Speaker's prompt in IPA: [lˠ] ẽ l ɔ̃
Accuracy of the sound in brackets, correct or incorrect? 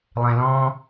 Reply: correct